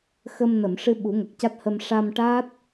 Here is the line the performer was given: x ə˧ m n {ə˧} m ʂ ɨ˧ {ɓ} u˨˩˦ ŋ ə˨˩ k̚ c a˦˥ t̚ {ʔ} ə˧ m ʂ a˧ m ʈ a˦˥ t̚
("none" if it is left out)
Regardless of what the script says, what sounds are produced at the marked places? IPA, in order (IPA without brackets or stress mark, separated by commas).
ə˨˩˨, ɓ, h